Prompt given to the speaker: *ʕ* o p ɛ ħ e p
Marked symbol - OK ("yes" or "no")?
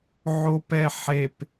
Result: yes